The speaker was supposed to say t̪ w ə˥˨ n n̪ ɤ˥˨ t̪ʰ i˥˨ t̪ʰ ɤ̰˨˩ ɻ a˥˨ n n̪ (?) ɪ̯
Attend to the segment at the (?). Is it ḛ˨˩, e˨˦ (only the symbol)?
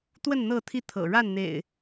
ḛ˨˩